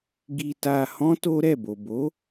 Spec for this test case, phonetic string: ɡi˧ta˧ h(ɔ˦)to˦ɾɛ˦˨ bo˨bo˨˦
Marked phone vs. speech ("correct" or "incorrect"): incorrect